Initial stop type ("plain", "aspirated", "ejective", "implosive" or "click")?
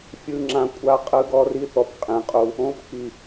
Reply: click